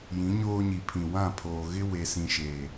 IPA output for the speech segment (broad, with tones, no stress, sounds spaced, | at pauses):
j ĩ˨˦ ɲ oː˦ ɲ i˨ pʰ ĩ˨ w ã˦˨ pʰ oː˨ ɣ ɪ˦ w e˨ s ĩ˨ ʃ eː˨